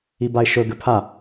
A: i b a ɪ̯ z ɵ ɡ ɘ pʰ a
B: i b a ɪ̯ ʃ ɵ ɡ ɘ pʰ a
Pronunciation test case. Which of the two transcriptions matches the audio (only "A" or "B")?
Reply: B